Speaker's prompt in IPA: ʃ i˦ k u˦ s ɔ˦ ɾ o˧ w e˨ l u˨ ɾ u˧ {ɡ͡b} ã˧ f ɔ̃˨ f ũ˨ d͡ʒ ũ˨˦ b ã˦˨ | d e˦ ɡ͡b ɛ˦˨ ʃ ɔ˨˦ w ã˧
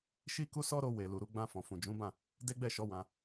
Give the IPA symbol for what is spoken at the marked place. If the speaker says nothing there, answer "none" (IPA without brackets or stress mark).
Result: ɡ͡b